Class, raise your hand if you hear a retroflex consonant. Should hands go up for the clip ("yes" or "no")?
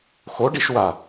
yes